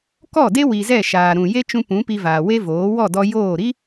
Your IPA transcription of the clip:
k ɔ˦˨ d e˦ w i˨ z ɛ˦˨ ʃ aː˨ ɾ ũ˨ j e˦ t͡ʃ ũ˧ p ũ˨˦ p i˧ v aː˨ w e˦ v oː˨˦ w ɔ˦˨ d ɔ˧ j oː˦˨ ɾ i˦

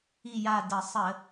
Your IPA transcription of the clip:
i˦˨ j a˦˨ d ə˧˩˧ sˤ ə˧˩˧

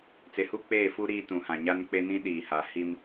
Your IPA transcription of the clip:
t͡s e˨ h u˦ k͡p eː˦˨ f u˦ ɾ iː˦ t ũ˨ h ã˨ ɲ a˦ n k͡p e˦ n ĩ˦ ɗ iː˨ h a˨ h i˦ m

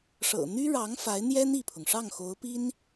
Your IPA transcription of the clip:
ʂ ɤ̰˨˩ n̪ y˥ ɻ ɑ˧˥ ŋ f a˧˥ ɪ̯ n̪ j ɛ˥ n̪ i˥˩ pʰ ʊ˩ ŋ ʂ ɑ˥˩ ŋ x o˧˥ ʊ̯ p i˥ n

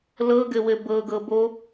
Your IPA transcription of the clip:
l ɤ ɡ ɘ w ɘ b ɤ ɡ ɤ b o

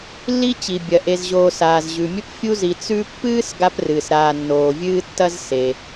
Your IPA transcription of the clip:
lː i˦ t͡ɕ i˩ bʲ ɐ˩ ʔ e˨ z ʑ oː˨ s aː˩ z ʑ ʉ˩ mʲ ɵ˥ p fʲ u˦ z i˨ t͡s ʉ˥ pː ɨː˥ s ɡ a˥ p r ɨː˩ s ɾ aː˨ nː oː˩ vʲ ɨː˥ tː ɐ˥ z s e˩

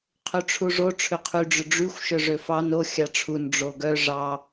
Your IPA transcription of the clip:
qʰ ø ʈ͡ʂʰ u ʐ o ʈ͡ʂʰ ø qʰ y ɖ͡ʐ ø ɖ͡ʐ y xʷ ʃ œ ʐ ø f ɑ n o xʲ ɑ ʈ͡ʂʰ u n ɖ͡ʐ o ɡ œ ʐ ɑ

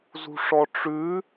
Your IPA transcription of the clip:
z ṳ ʂ ɔ ʈ͡ʂ ʉ

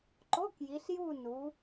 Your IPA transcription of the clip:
ǃ o˧˥˧ k j i˩˧ ɬ j u˦˨ n u˩˧

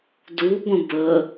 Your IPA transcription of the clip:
d u ɡʷ ə̃ b ə

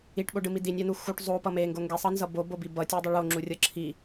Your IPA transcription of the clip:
i ʈ ɓ o ɖ ɯ m i d i nʲ a n u x u ʈ zˤ o p ʌ m e ŋ ɡ o ŋ ɡ e sˤ ʌ n z ʌ b o b o b i b ʌ tʲ o dˤ ʌ ɭ o ŋ͡ǁ u rʲ ʌ ǁʰ i

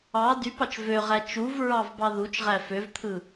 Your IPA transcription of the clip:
ɑ d y p ɑ t͡ʃ v ø ʁ æ t͡ʃ u v ɹ ɑ v b ɑ ð u t͡ʃ ʁ æ f ø v t̪ʰ ɯ

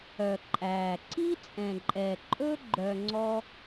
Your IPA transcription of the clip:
œ˨ ǃʼ æː˨ ǀ i˦ t͡sʼ ɛ̃˨ ǃʼ ɛ˨ ǃʼ ɵ˦ ɡ͡ǃ œ˧ ŋ͡ǀ ɔ˦

